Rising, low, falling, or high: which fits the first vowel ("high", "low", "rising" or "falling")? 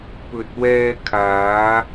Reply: low